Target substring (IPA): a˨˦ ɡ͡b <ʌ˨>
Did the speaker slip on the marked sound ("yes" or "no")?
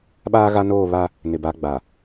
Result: yes